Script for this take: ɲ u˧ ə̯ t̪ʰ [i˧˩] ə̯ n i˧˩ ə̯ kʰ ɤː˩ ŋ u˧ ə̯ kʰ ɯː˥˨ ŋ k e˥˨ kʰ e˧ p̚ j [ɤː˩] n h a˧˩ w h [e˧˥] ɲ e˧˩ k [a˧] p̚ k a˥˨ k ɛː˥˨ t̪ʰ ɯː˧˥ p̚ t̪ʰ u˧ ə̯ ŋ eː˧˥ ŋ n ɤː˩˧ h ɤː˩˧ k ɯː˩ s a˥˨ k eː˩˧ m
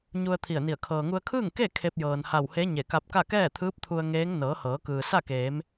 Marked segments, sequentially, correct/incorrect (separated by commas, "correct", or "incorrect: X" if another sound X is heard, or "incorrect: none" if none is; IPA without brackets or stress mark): correct, correct, correct, correct